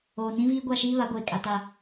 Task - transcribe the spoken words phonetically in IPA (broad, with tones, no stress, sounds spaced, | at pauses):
oː˨ n ĩ˦ v iː˦ ɡʷ a˦˨ ʃ iː˦ β a˨˦ ɡʷ eː˨ kʼ a˨ t a˨